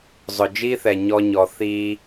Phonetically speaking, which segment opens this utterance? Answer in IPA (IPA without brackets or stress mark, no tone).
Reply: zˤ